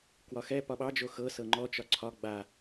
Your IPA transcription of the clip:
k w ɒ x ɛ p ɒ ɓ ɑ d͡ʒ o x ɤ s ɤ ŋ͡ǃ ɔ t͡ʃ ɒ ǀʰ ɒ ɡ͡b a

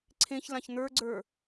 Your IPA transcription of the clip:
ǀʰ ẽ ç l ã ç n̪ ə˞ ɡ͡ǀ ə˞

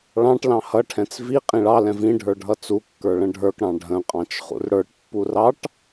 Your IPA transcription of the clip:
ɭ ɑ̃ ʈ l ɑ̃ h ʌ ʈʰ ɛ̃ t͡s v i qʼ ĩ ɭ ɑ l ɛ̃ v ĩ ɖʱ ə˞ ɖʱ ʌ t͡s u kː ə˞ ɭ ə̃ ɖʱ ə˞ k ɽ ɑ̃ ɖʱ ə̃ qʼ ɑ̃ t͡ʃ χ ṵ r ɽ ə˞ ʈ pː u r ɑ ʈ

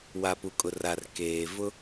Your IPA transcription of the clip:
w a˨ p u˨ kʼ ʊ˨ r a˨ r k eː˨ v ʊ˦

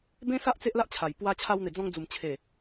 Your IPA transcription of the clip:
b ẽ˦ s a˦ ʔ t͡s e˦ ʔ l a˦ ʔ t͡ɕʰ a˨˩ j p w a˧ t͡ɕʰ a˧ w n̪ e˨˩ d͡z ɔ̃˧ ŋ d͡z u˨˩ m t͡ɕʰ e˨˩

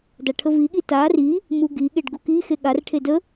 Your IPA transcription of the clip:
d a ʈʰ ə v i ɠ i t a r i | m u ɡ i ɠ e ɖ ɡ u k i x e ɠ a r ʈʰ e d ə

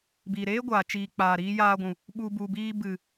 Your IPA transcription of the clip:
b iː˨ ɾ eː˦ ɡʷ aː˨ t͡ʃ iː˨ k͡p aː˨ ɾ iː˧ j aː˧ ɡʷ ũ˨ | ɓ u˧ b u˨ b iː˧ b ɨ˨

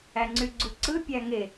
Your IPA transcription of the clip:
æ ŋ͡ǀ y ɡ͡ǀ u ǀ ɯ pʲ æ ŋ e

